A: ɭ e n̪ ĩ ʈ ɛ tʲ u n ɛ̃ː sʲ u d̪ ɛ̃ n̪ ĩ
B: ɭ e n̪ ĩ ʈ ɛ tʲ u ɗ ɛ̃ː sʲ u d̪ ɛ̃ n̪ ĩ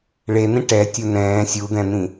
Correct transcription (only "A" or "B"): A